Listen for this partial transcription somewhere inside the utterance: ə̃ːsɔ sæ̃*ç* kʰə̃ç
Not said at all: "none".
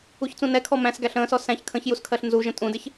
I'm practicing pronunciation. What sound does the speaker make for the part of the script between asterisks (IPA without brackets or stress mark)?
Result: ç